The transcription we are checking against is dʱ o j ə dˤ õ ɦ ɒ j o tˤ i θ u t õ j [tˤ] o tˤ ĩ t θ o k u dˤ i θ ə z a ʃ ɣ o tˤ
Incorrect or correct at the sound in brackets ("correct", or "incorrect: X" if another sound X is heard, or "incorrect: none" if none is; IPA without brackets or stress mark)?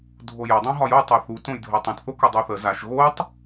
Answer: incorrect: dʱ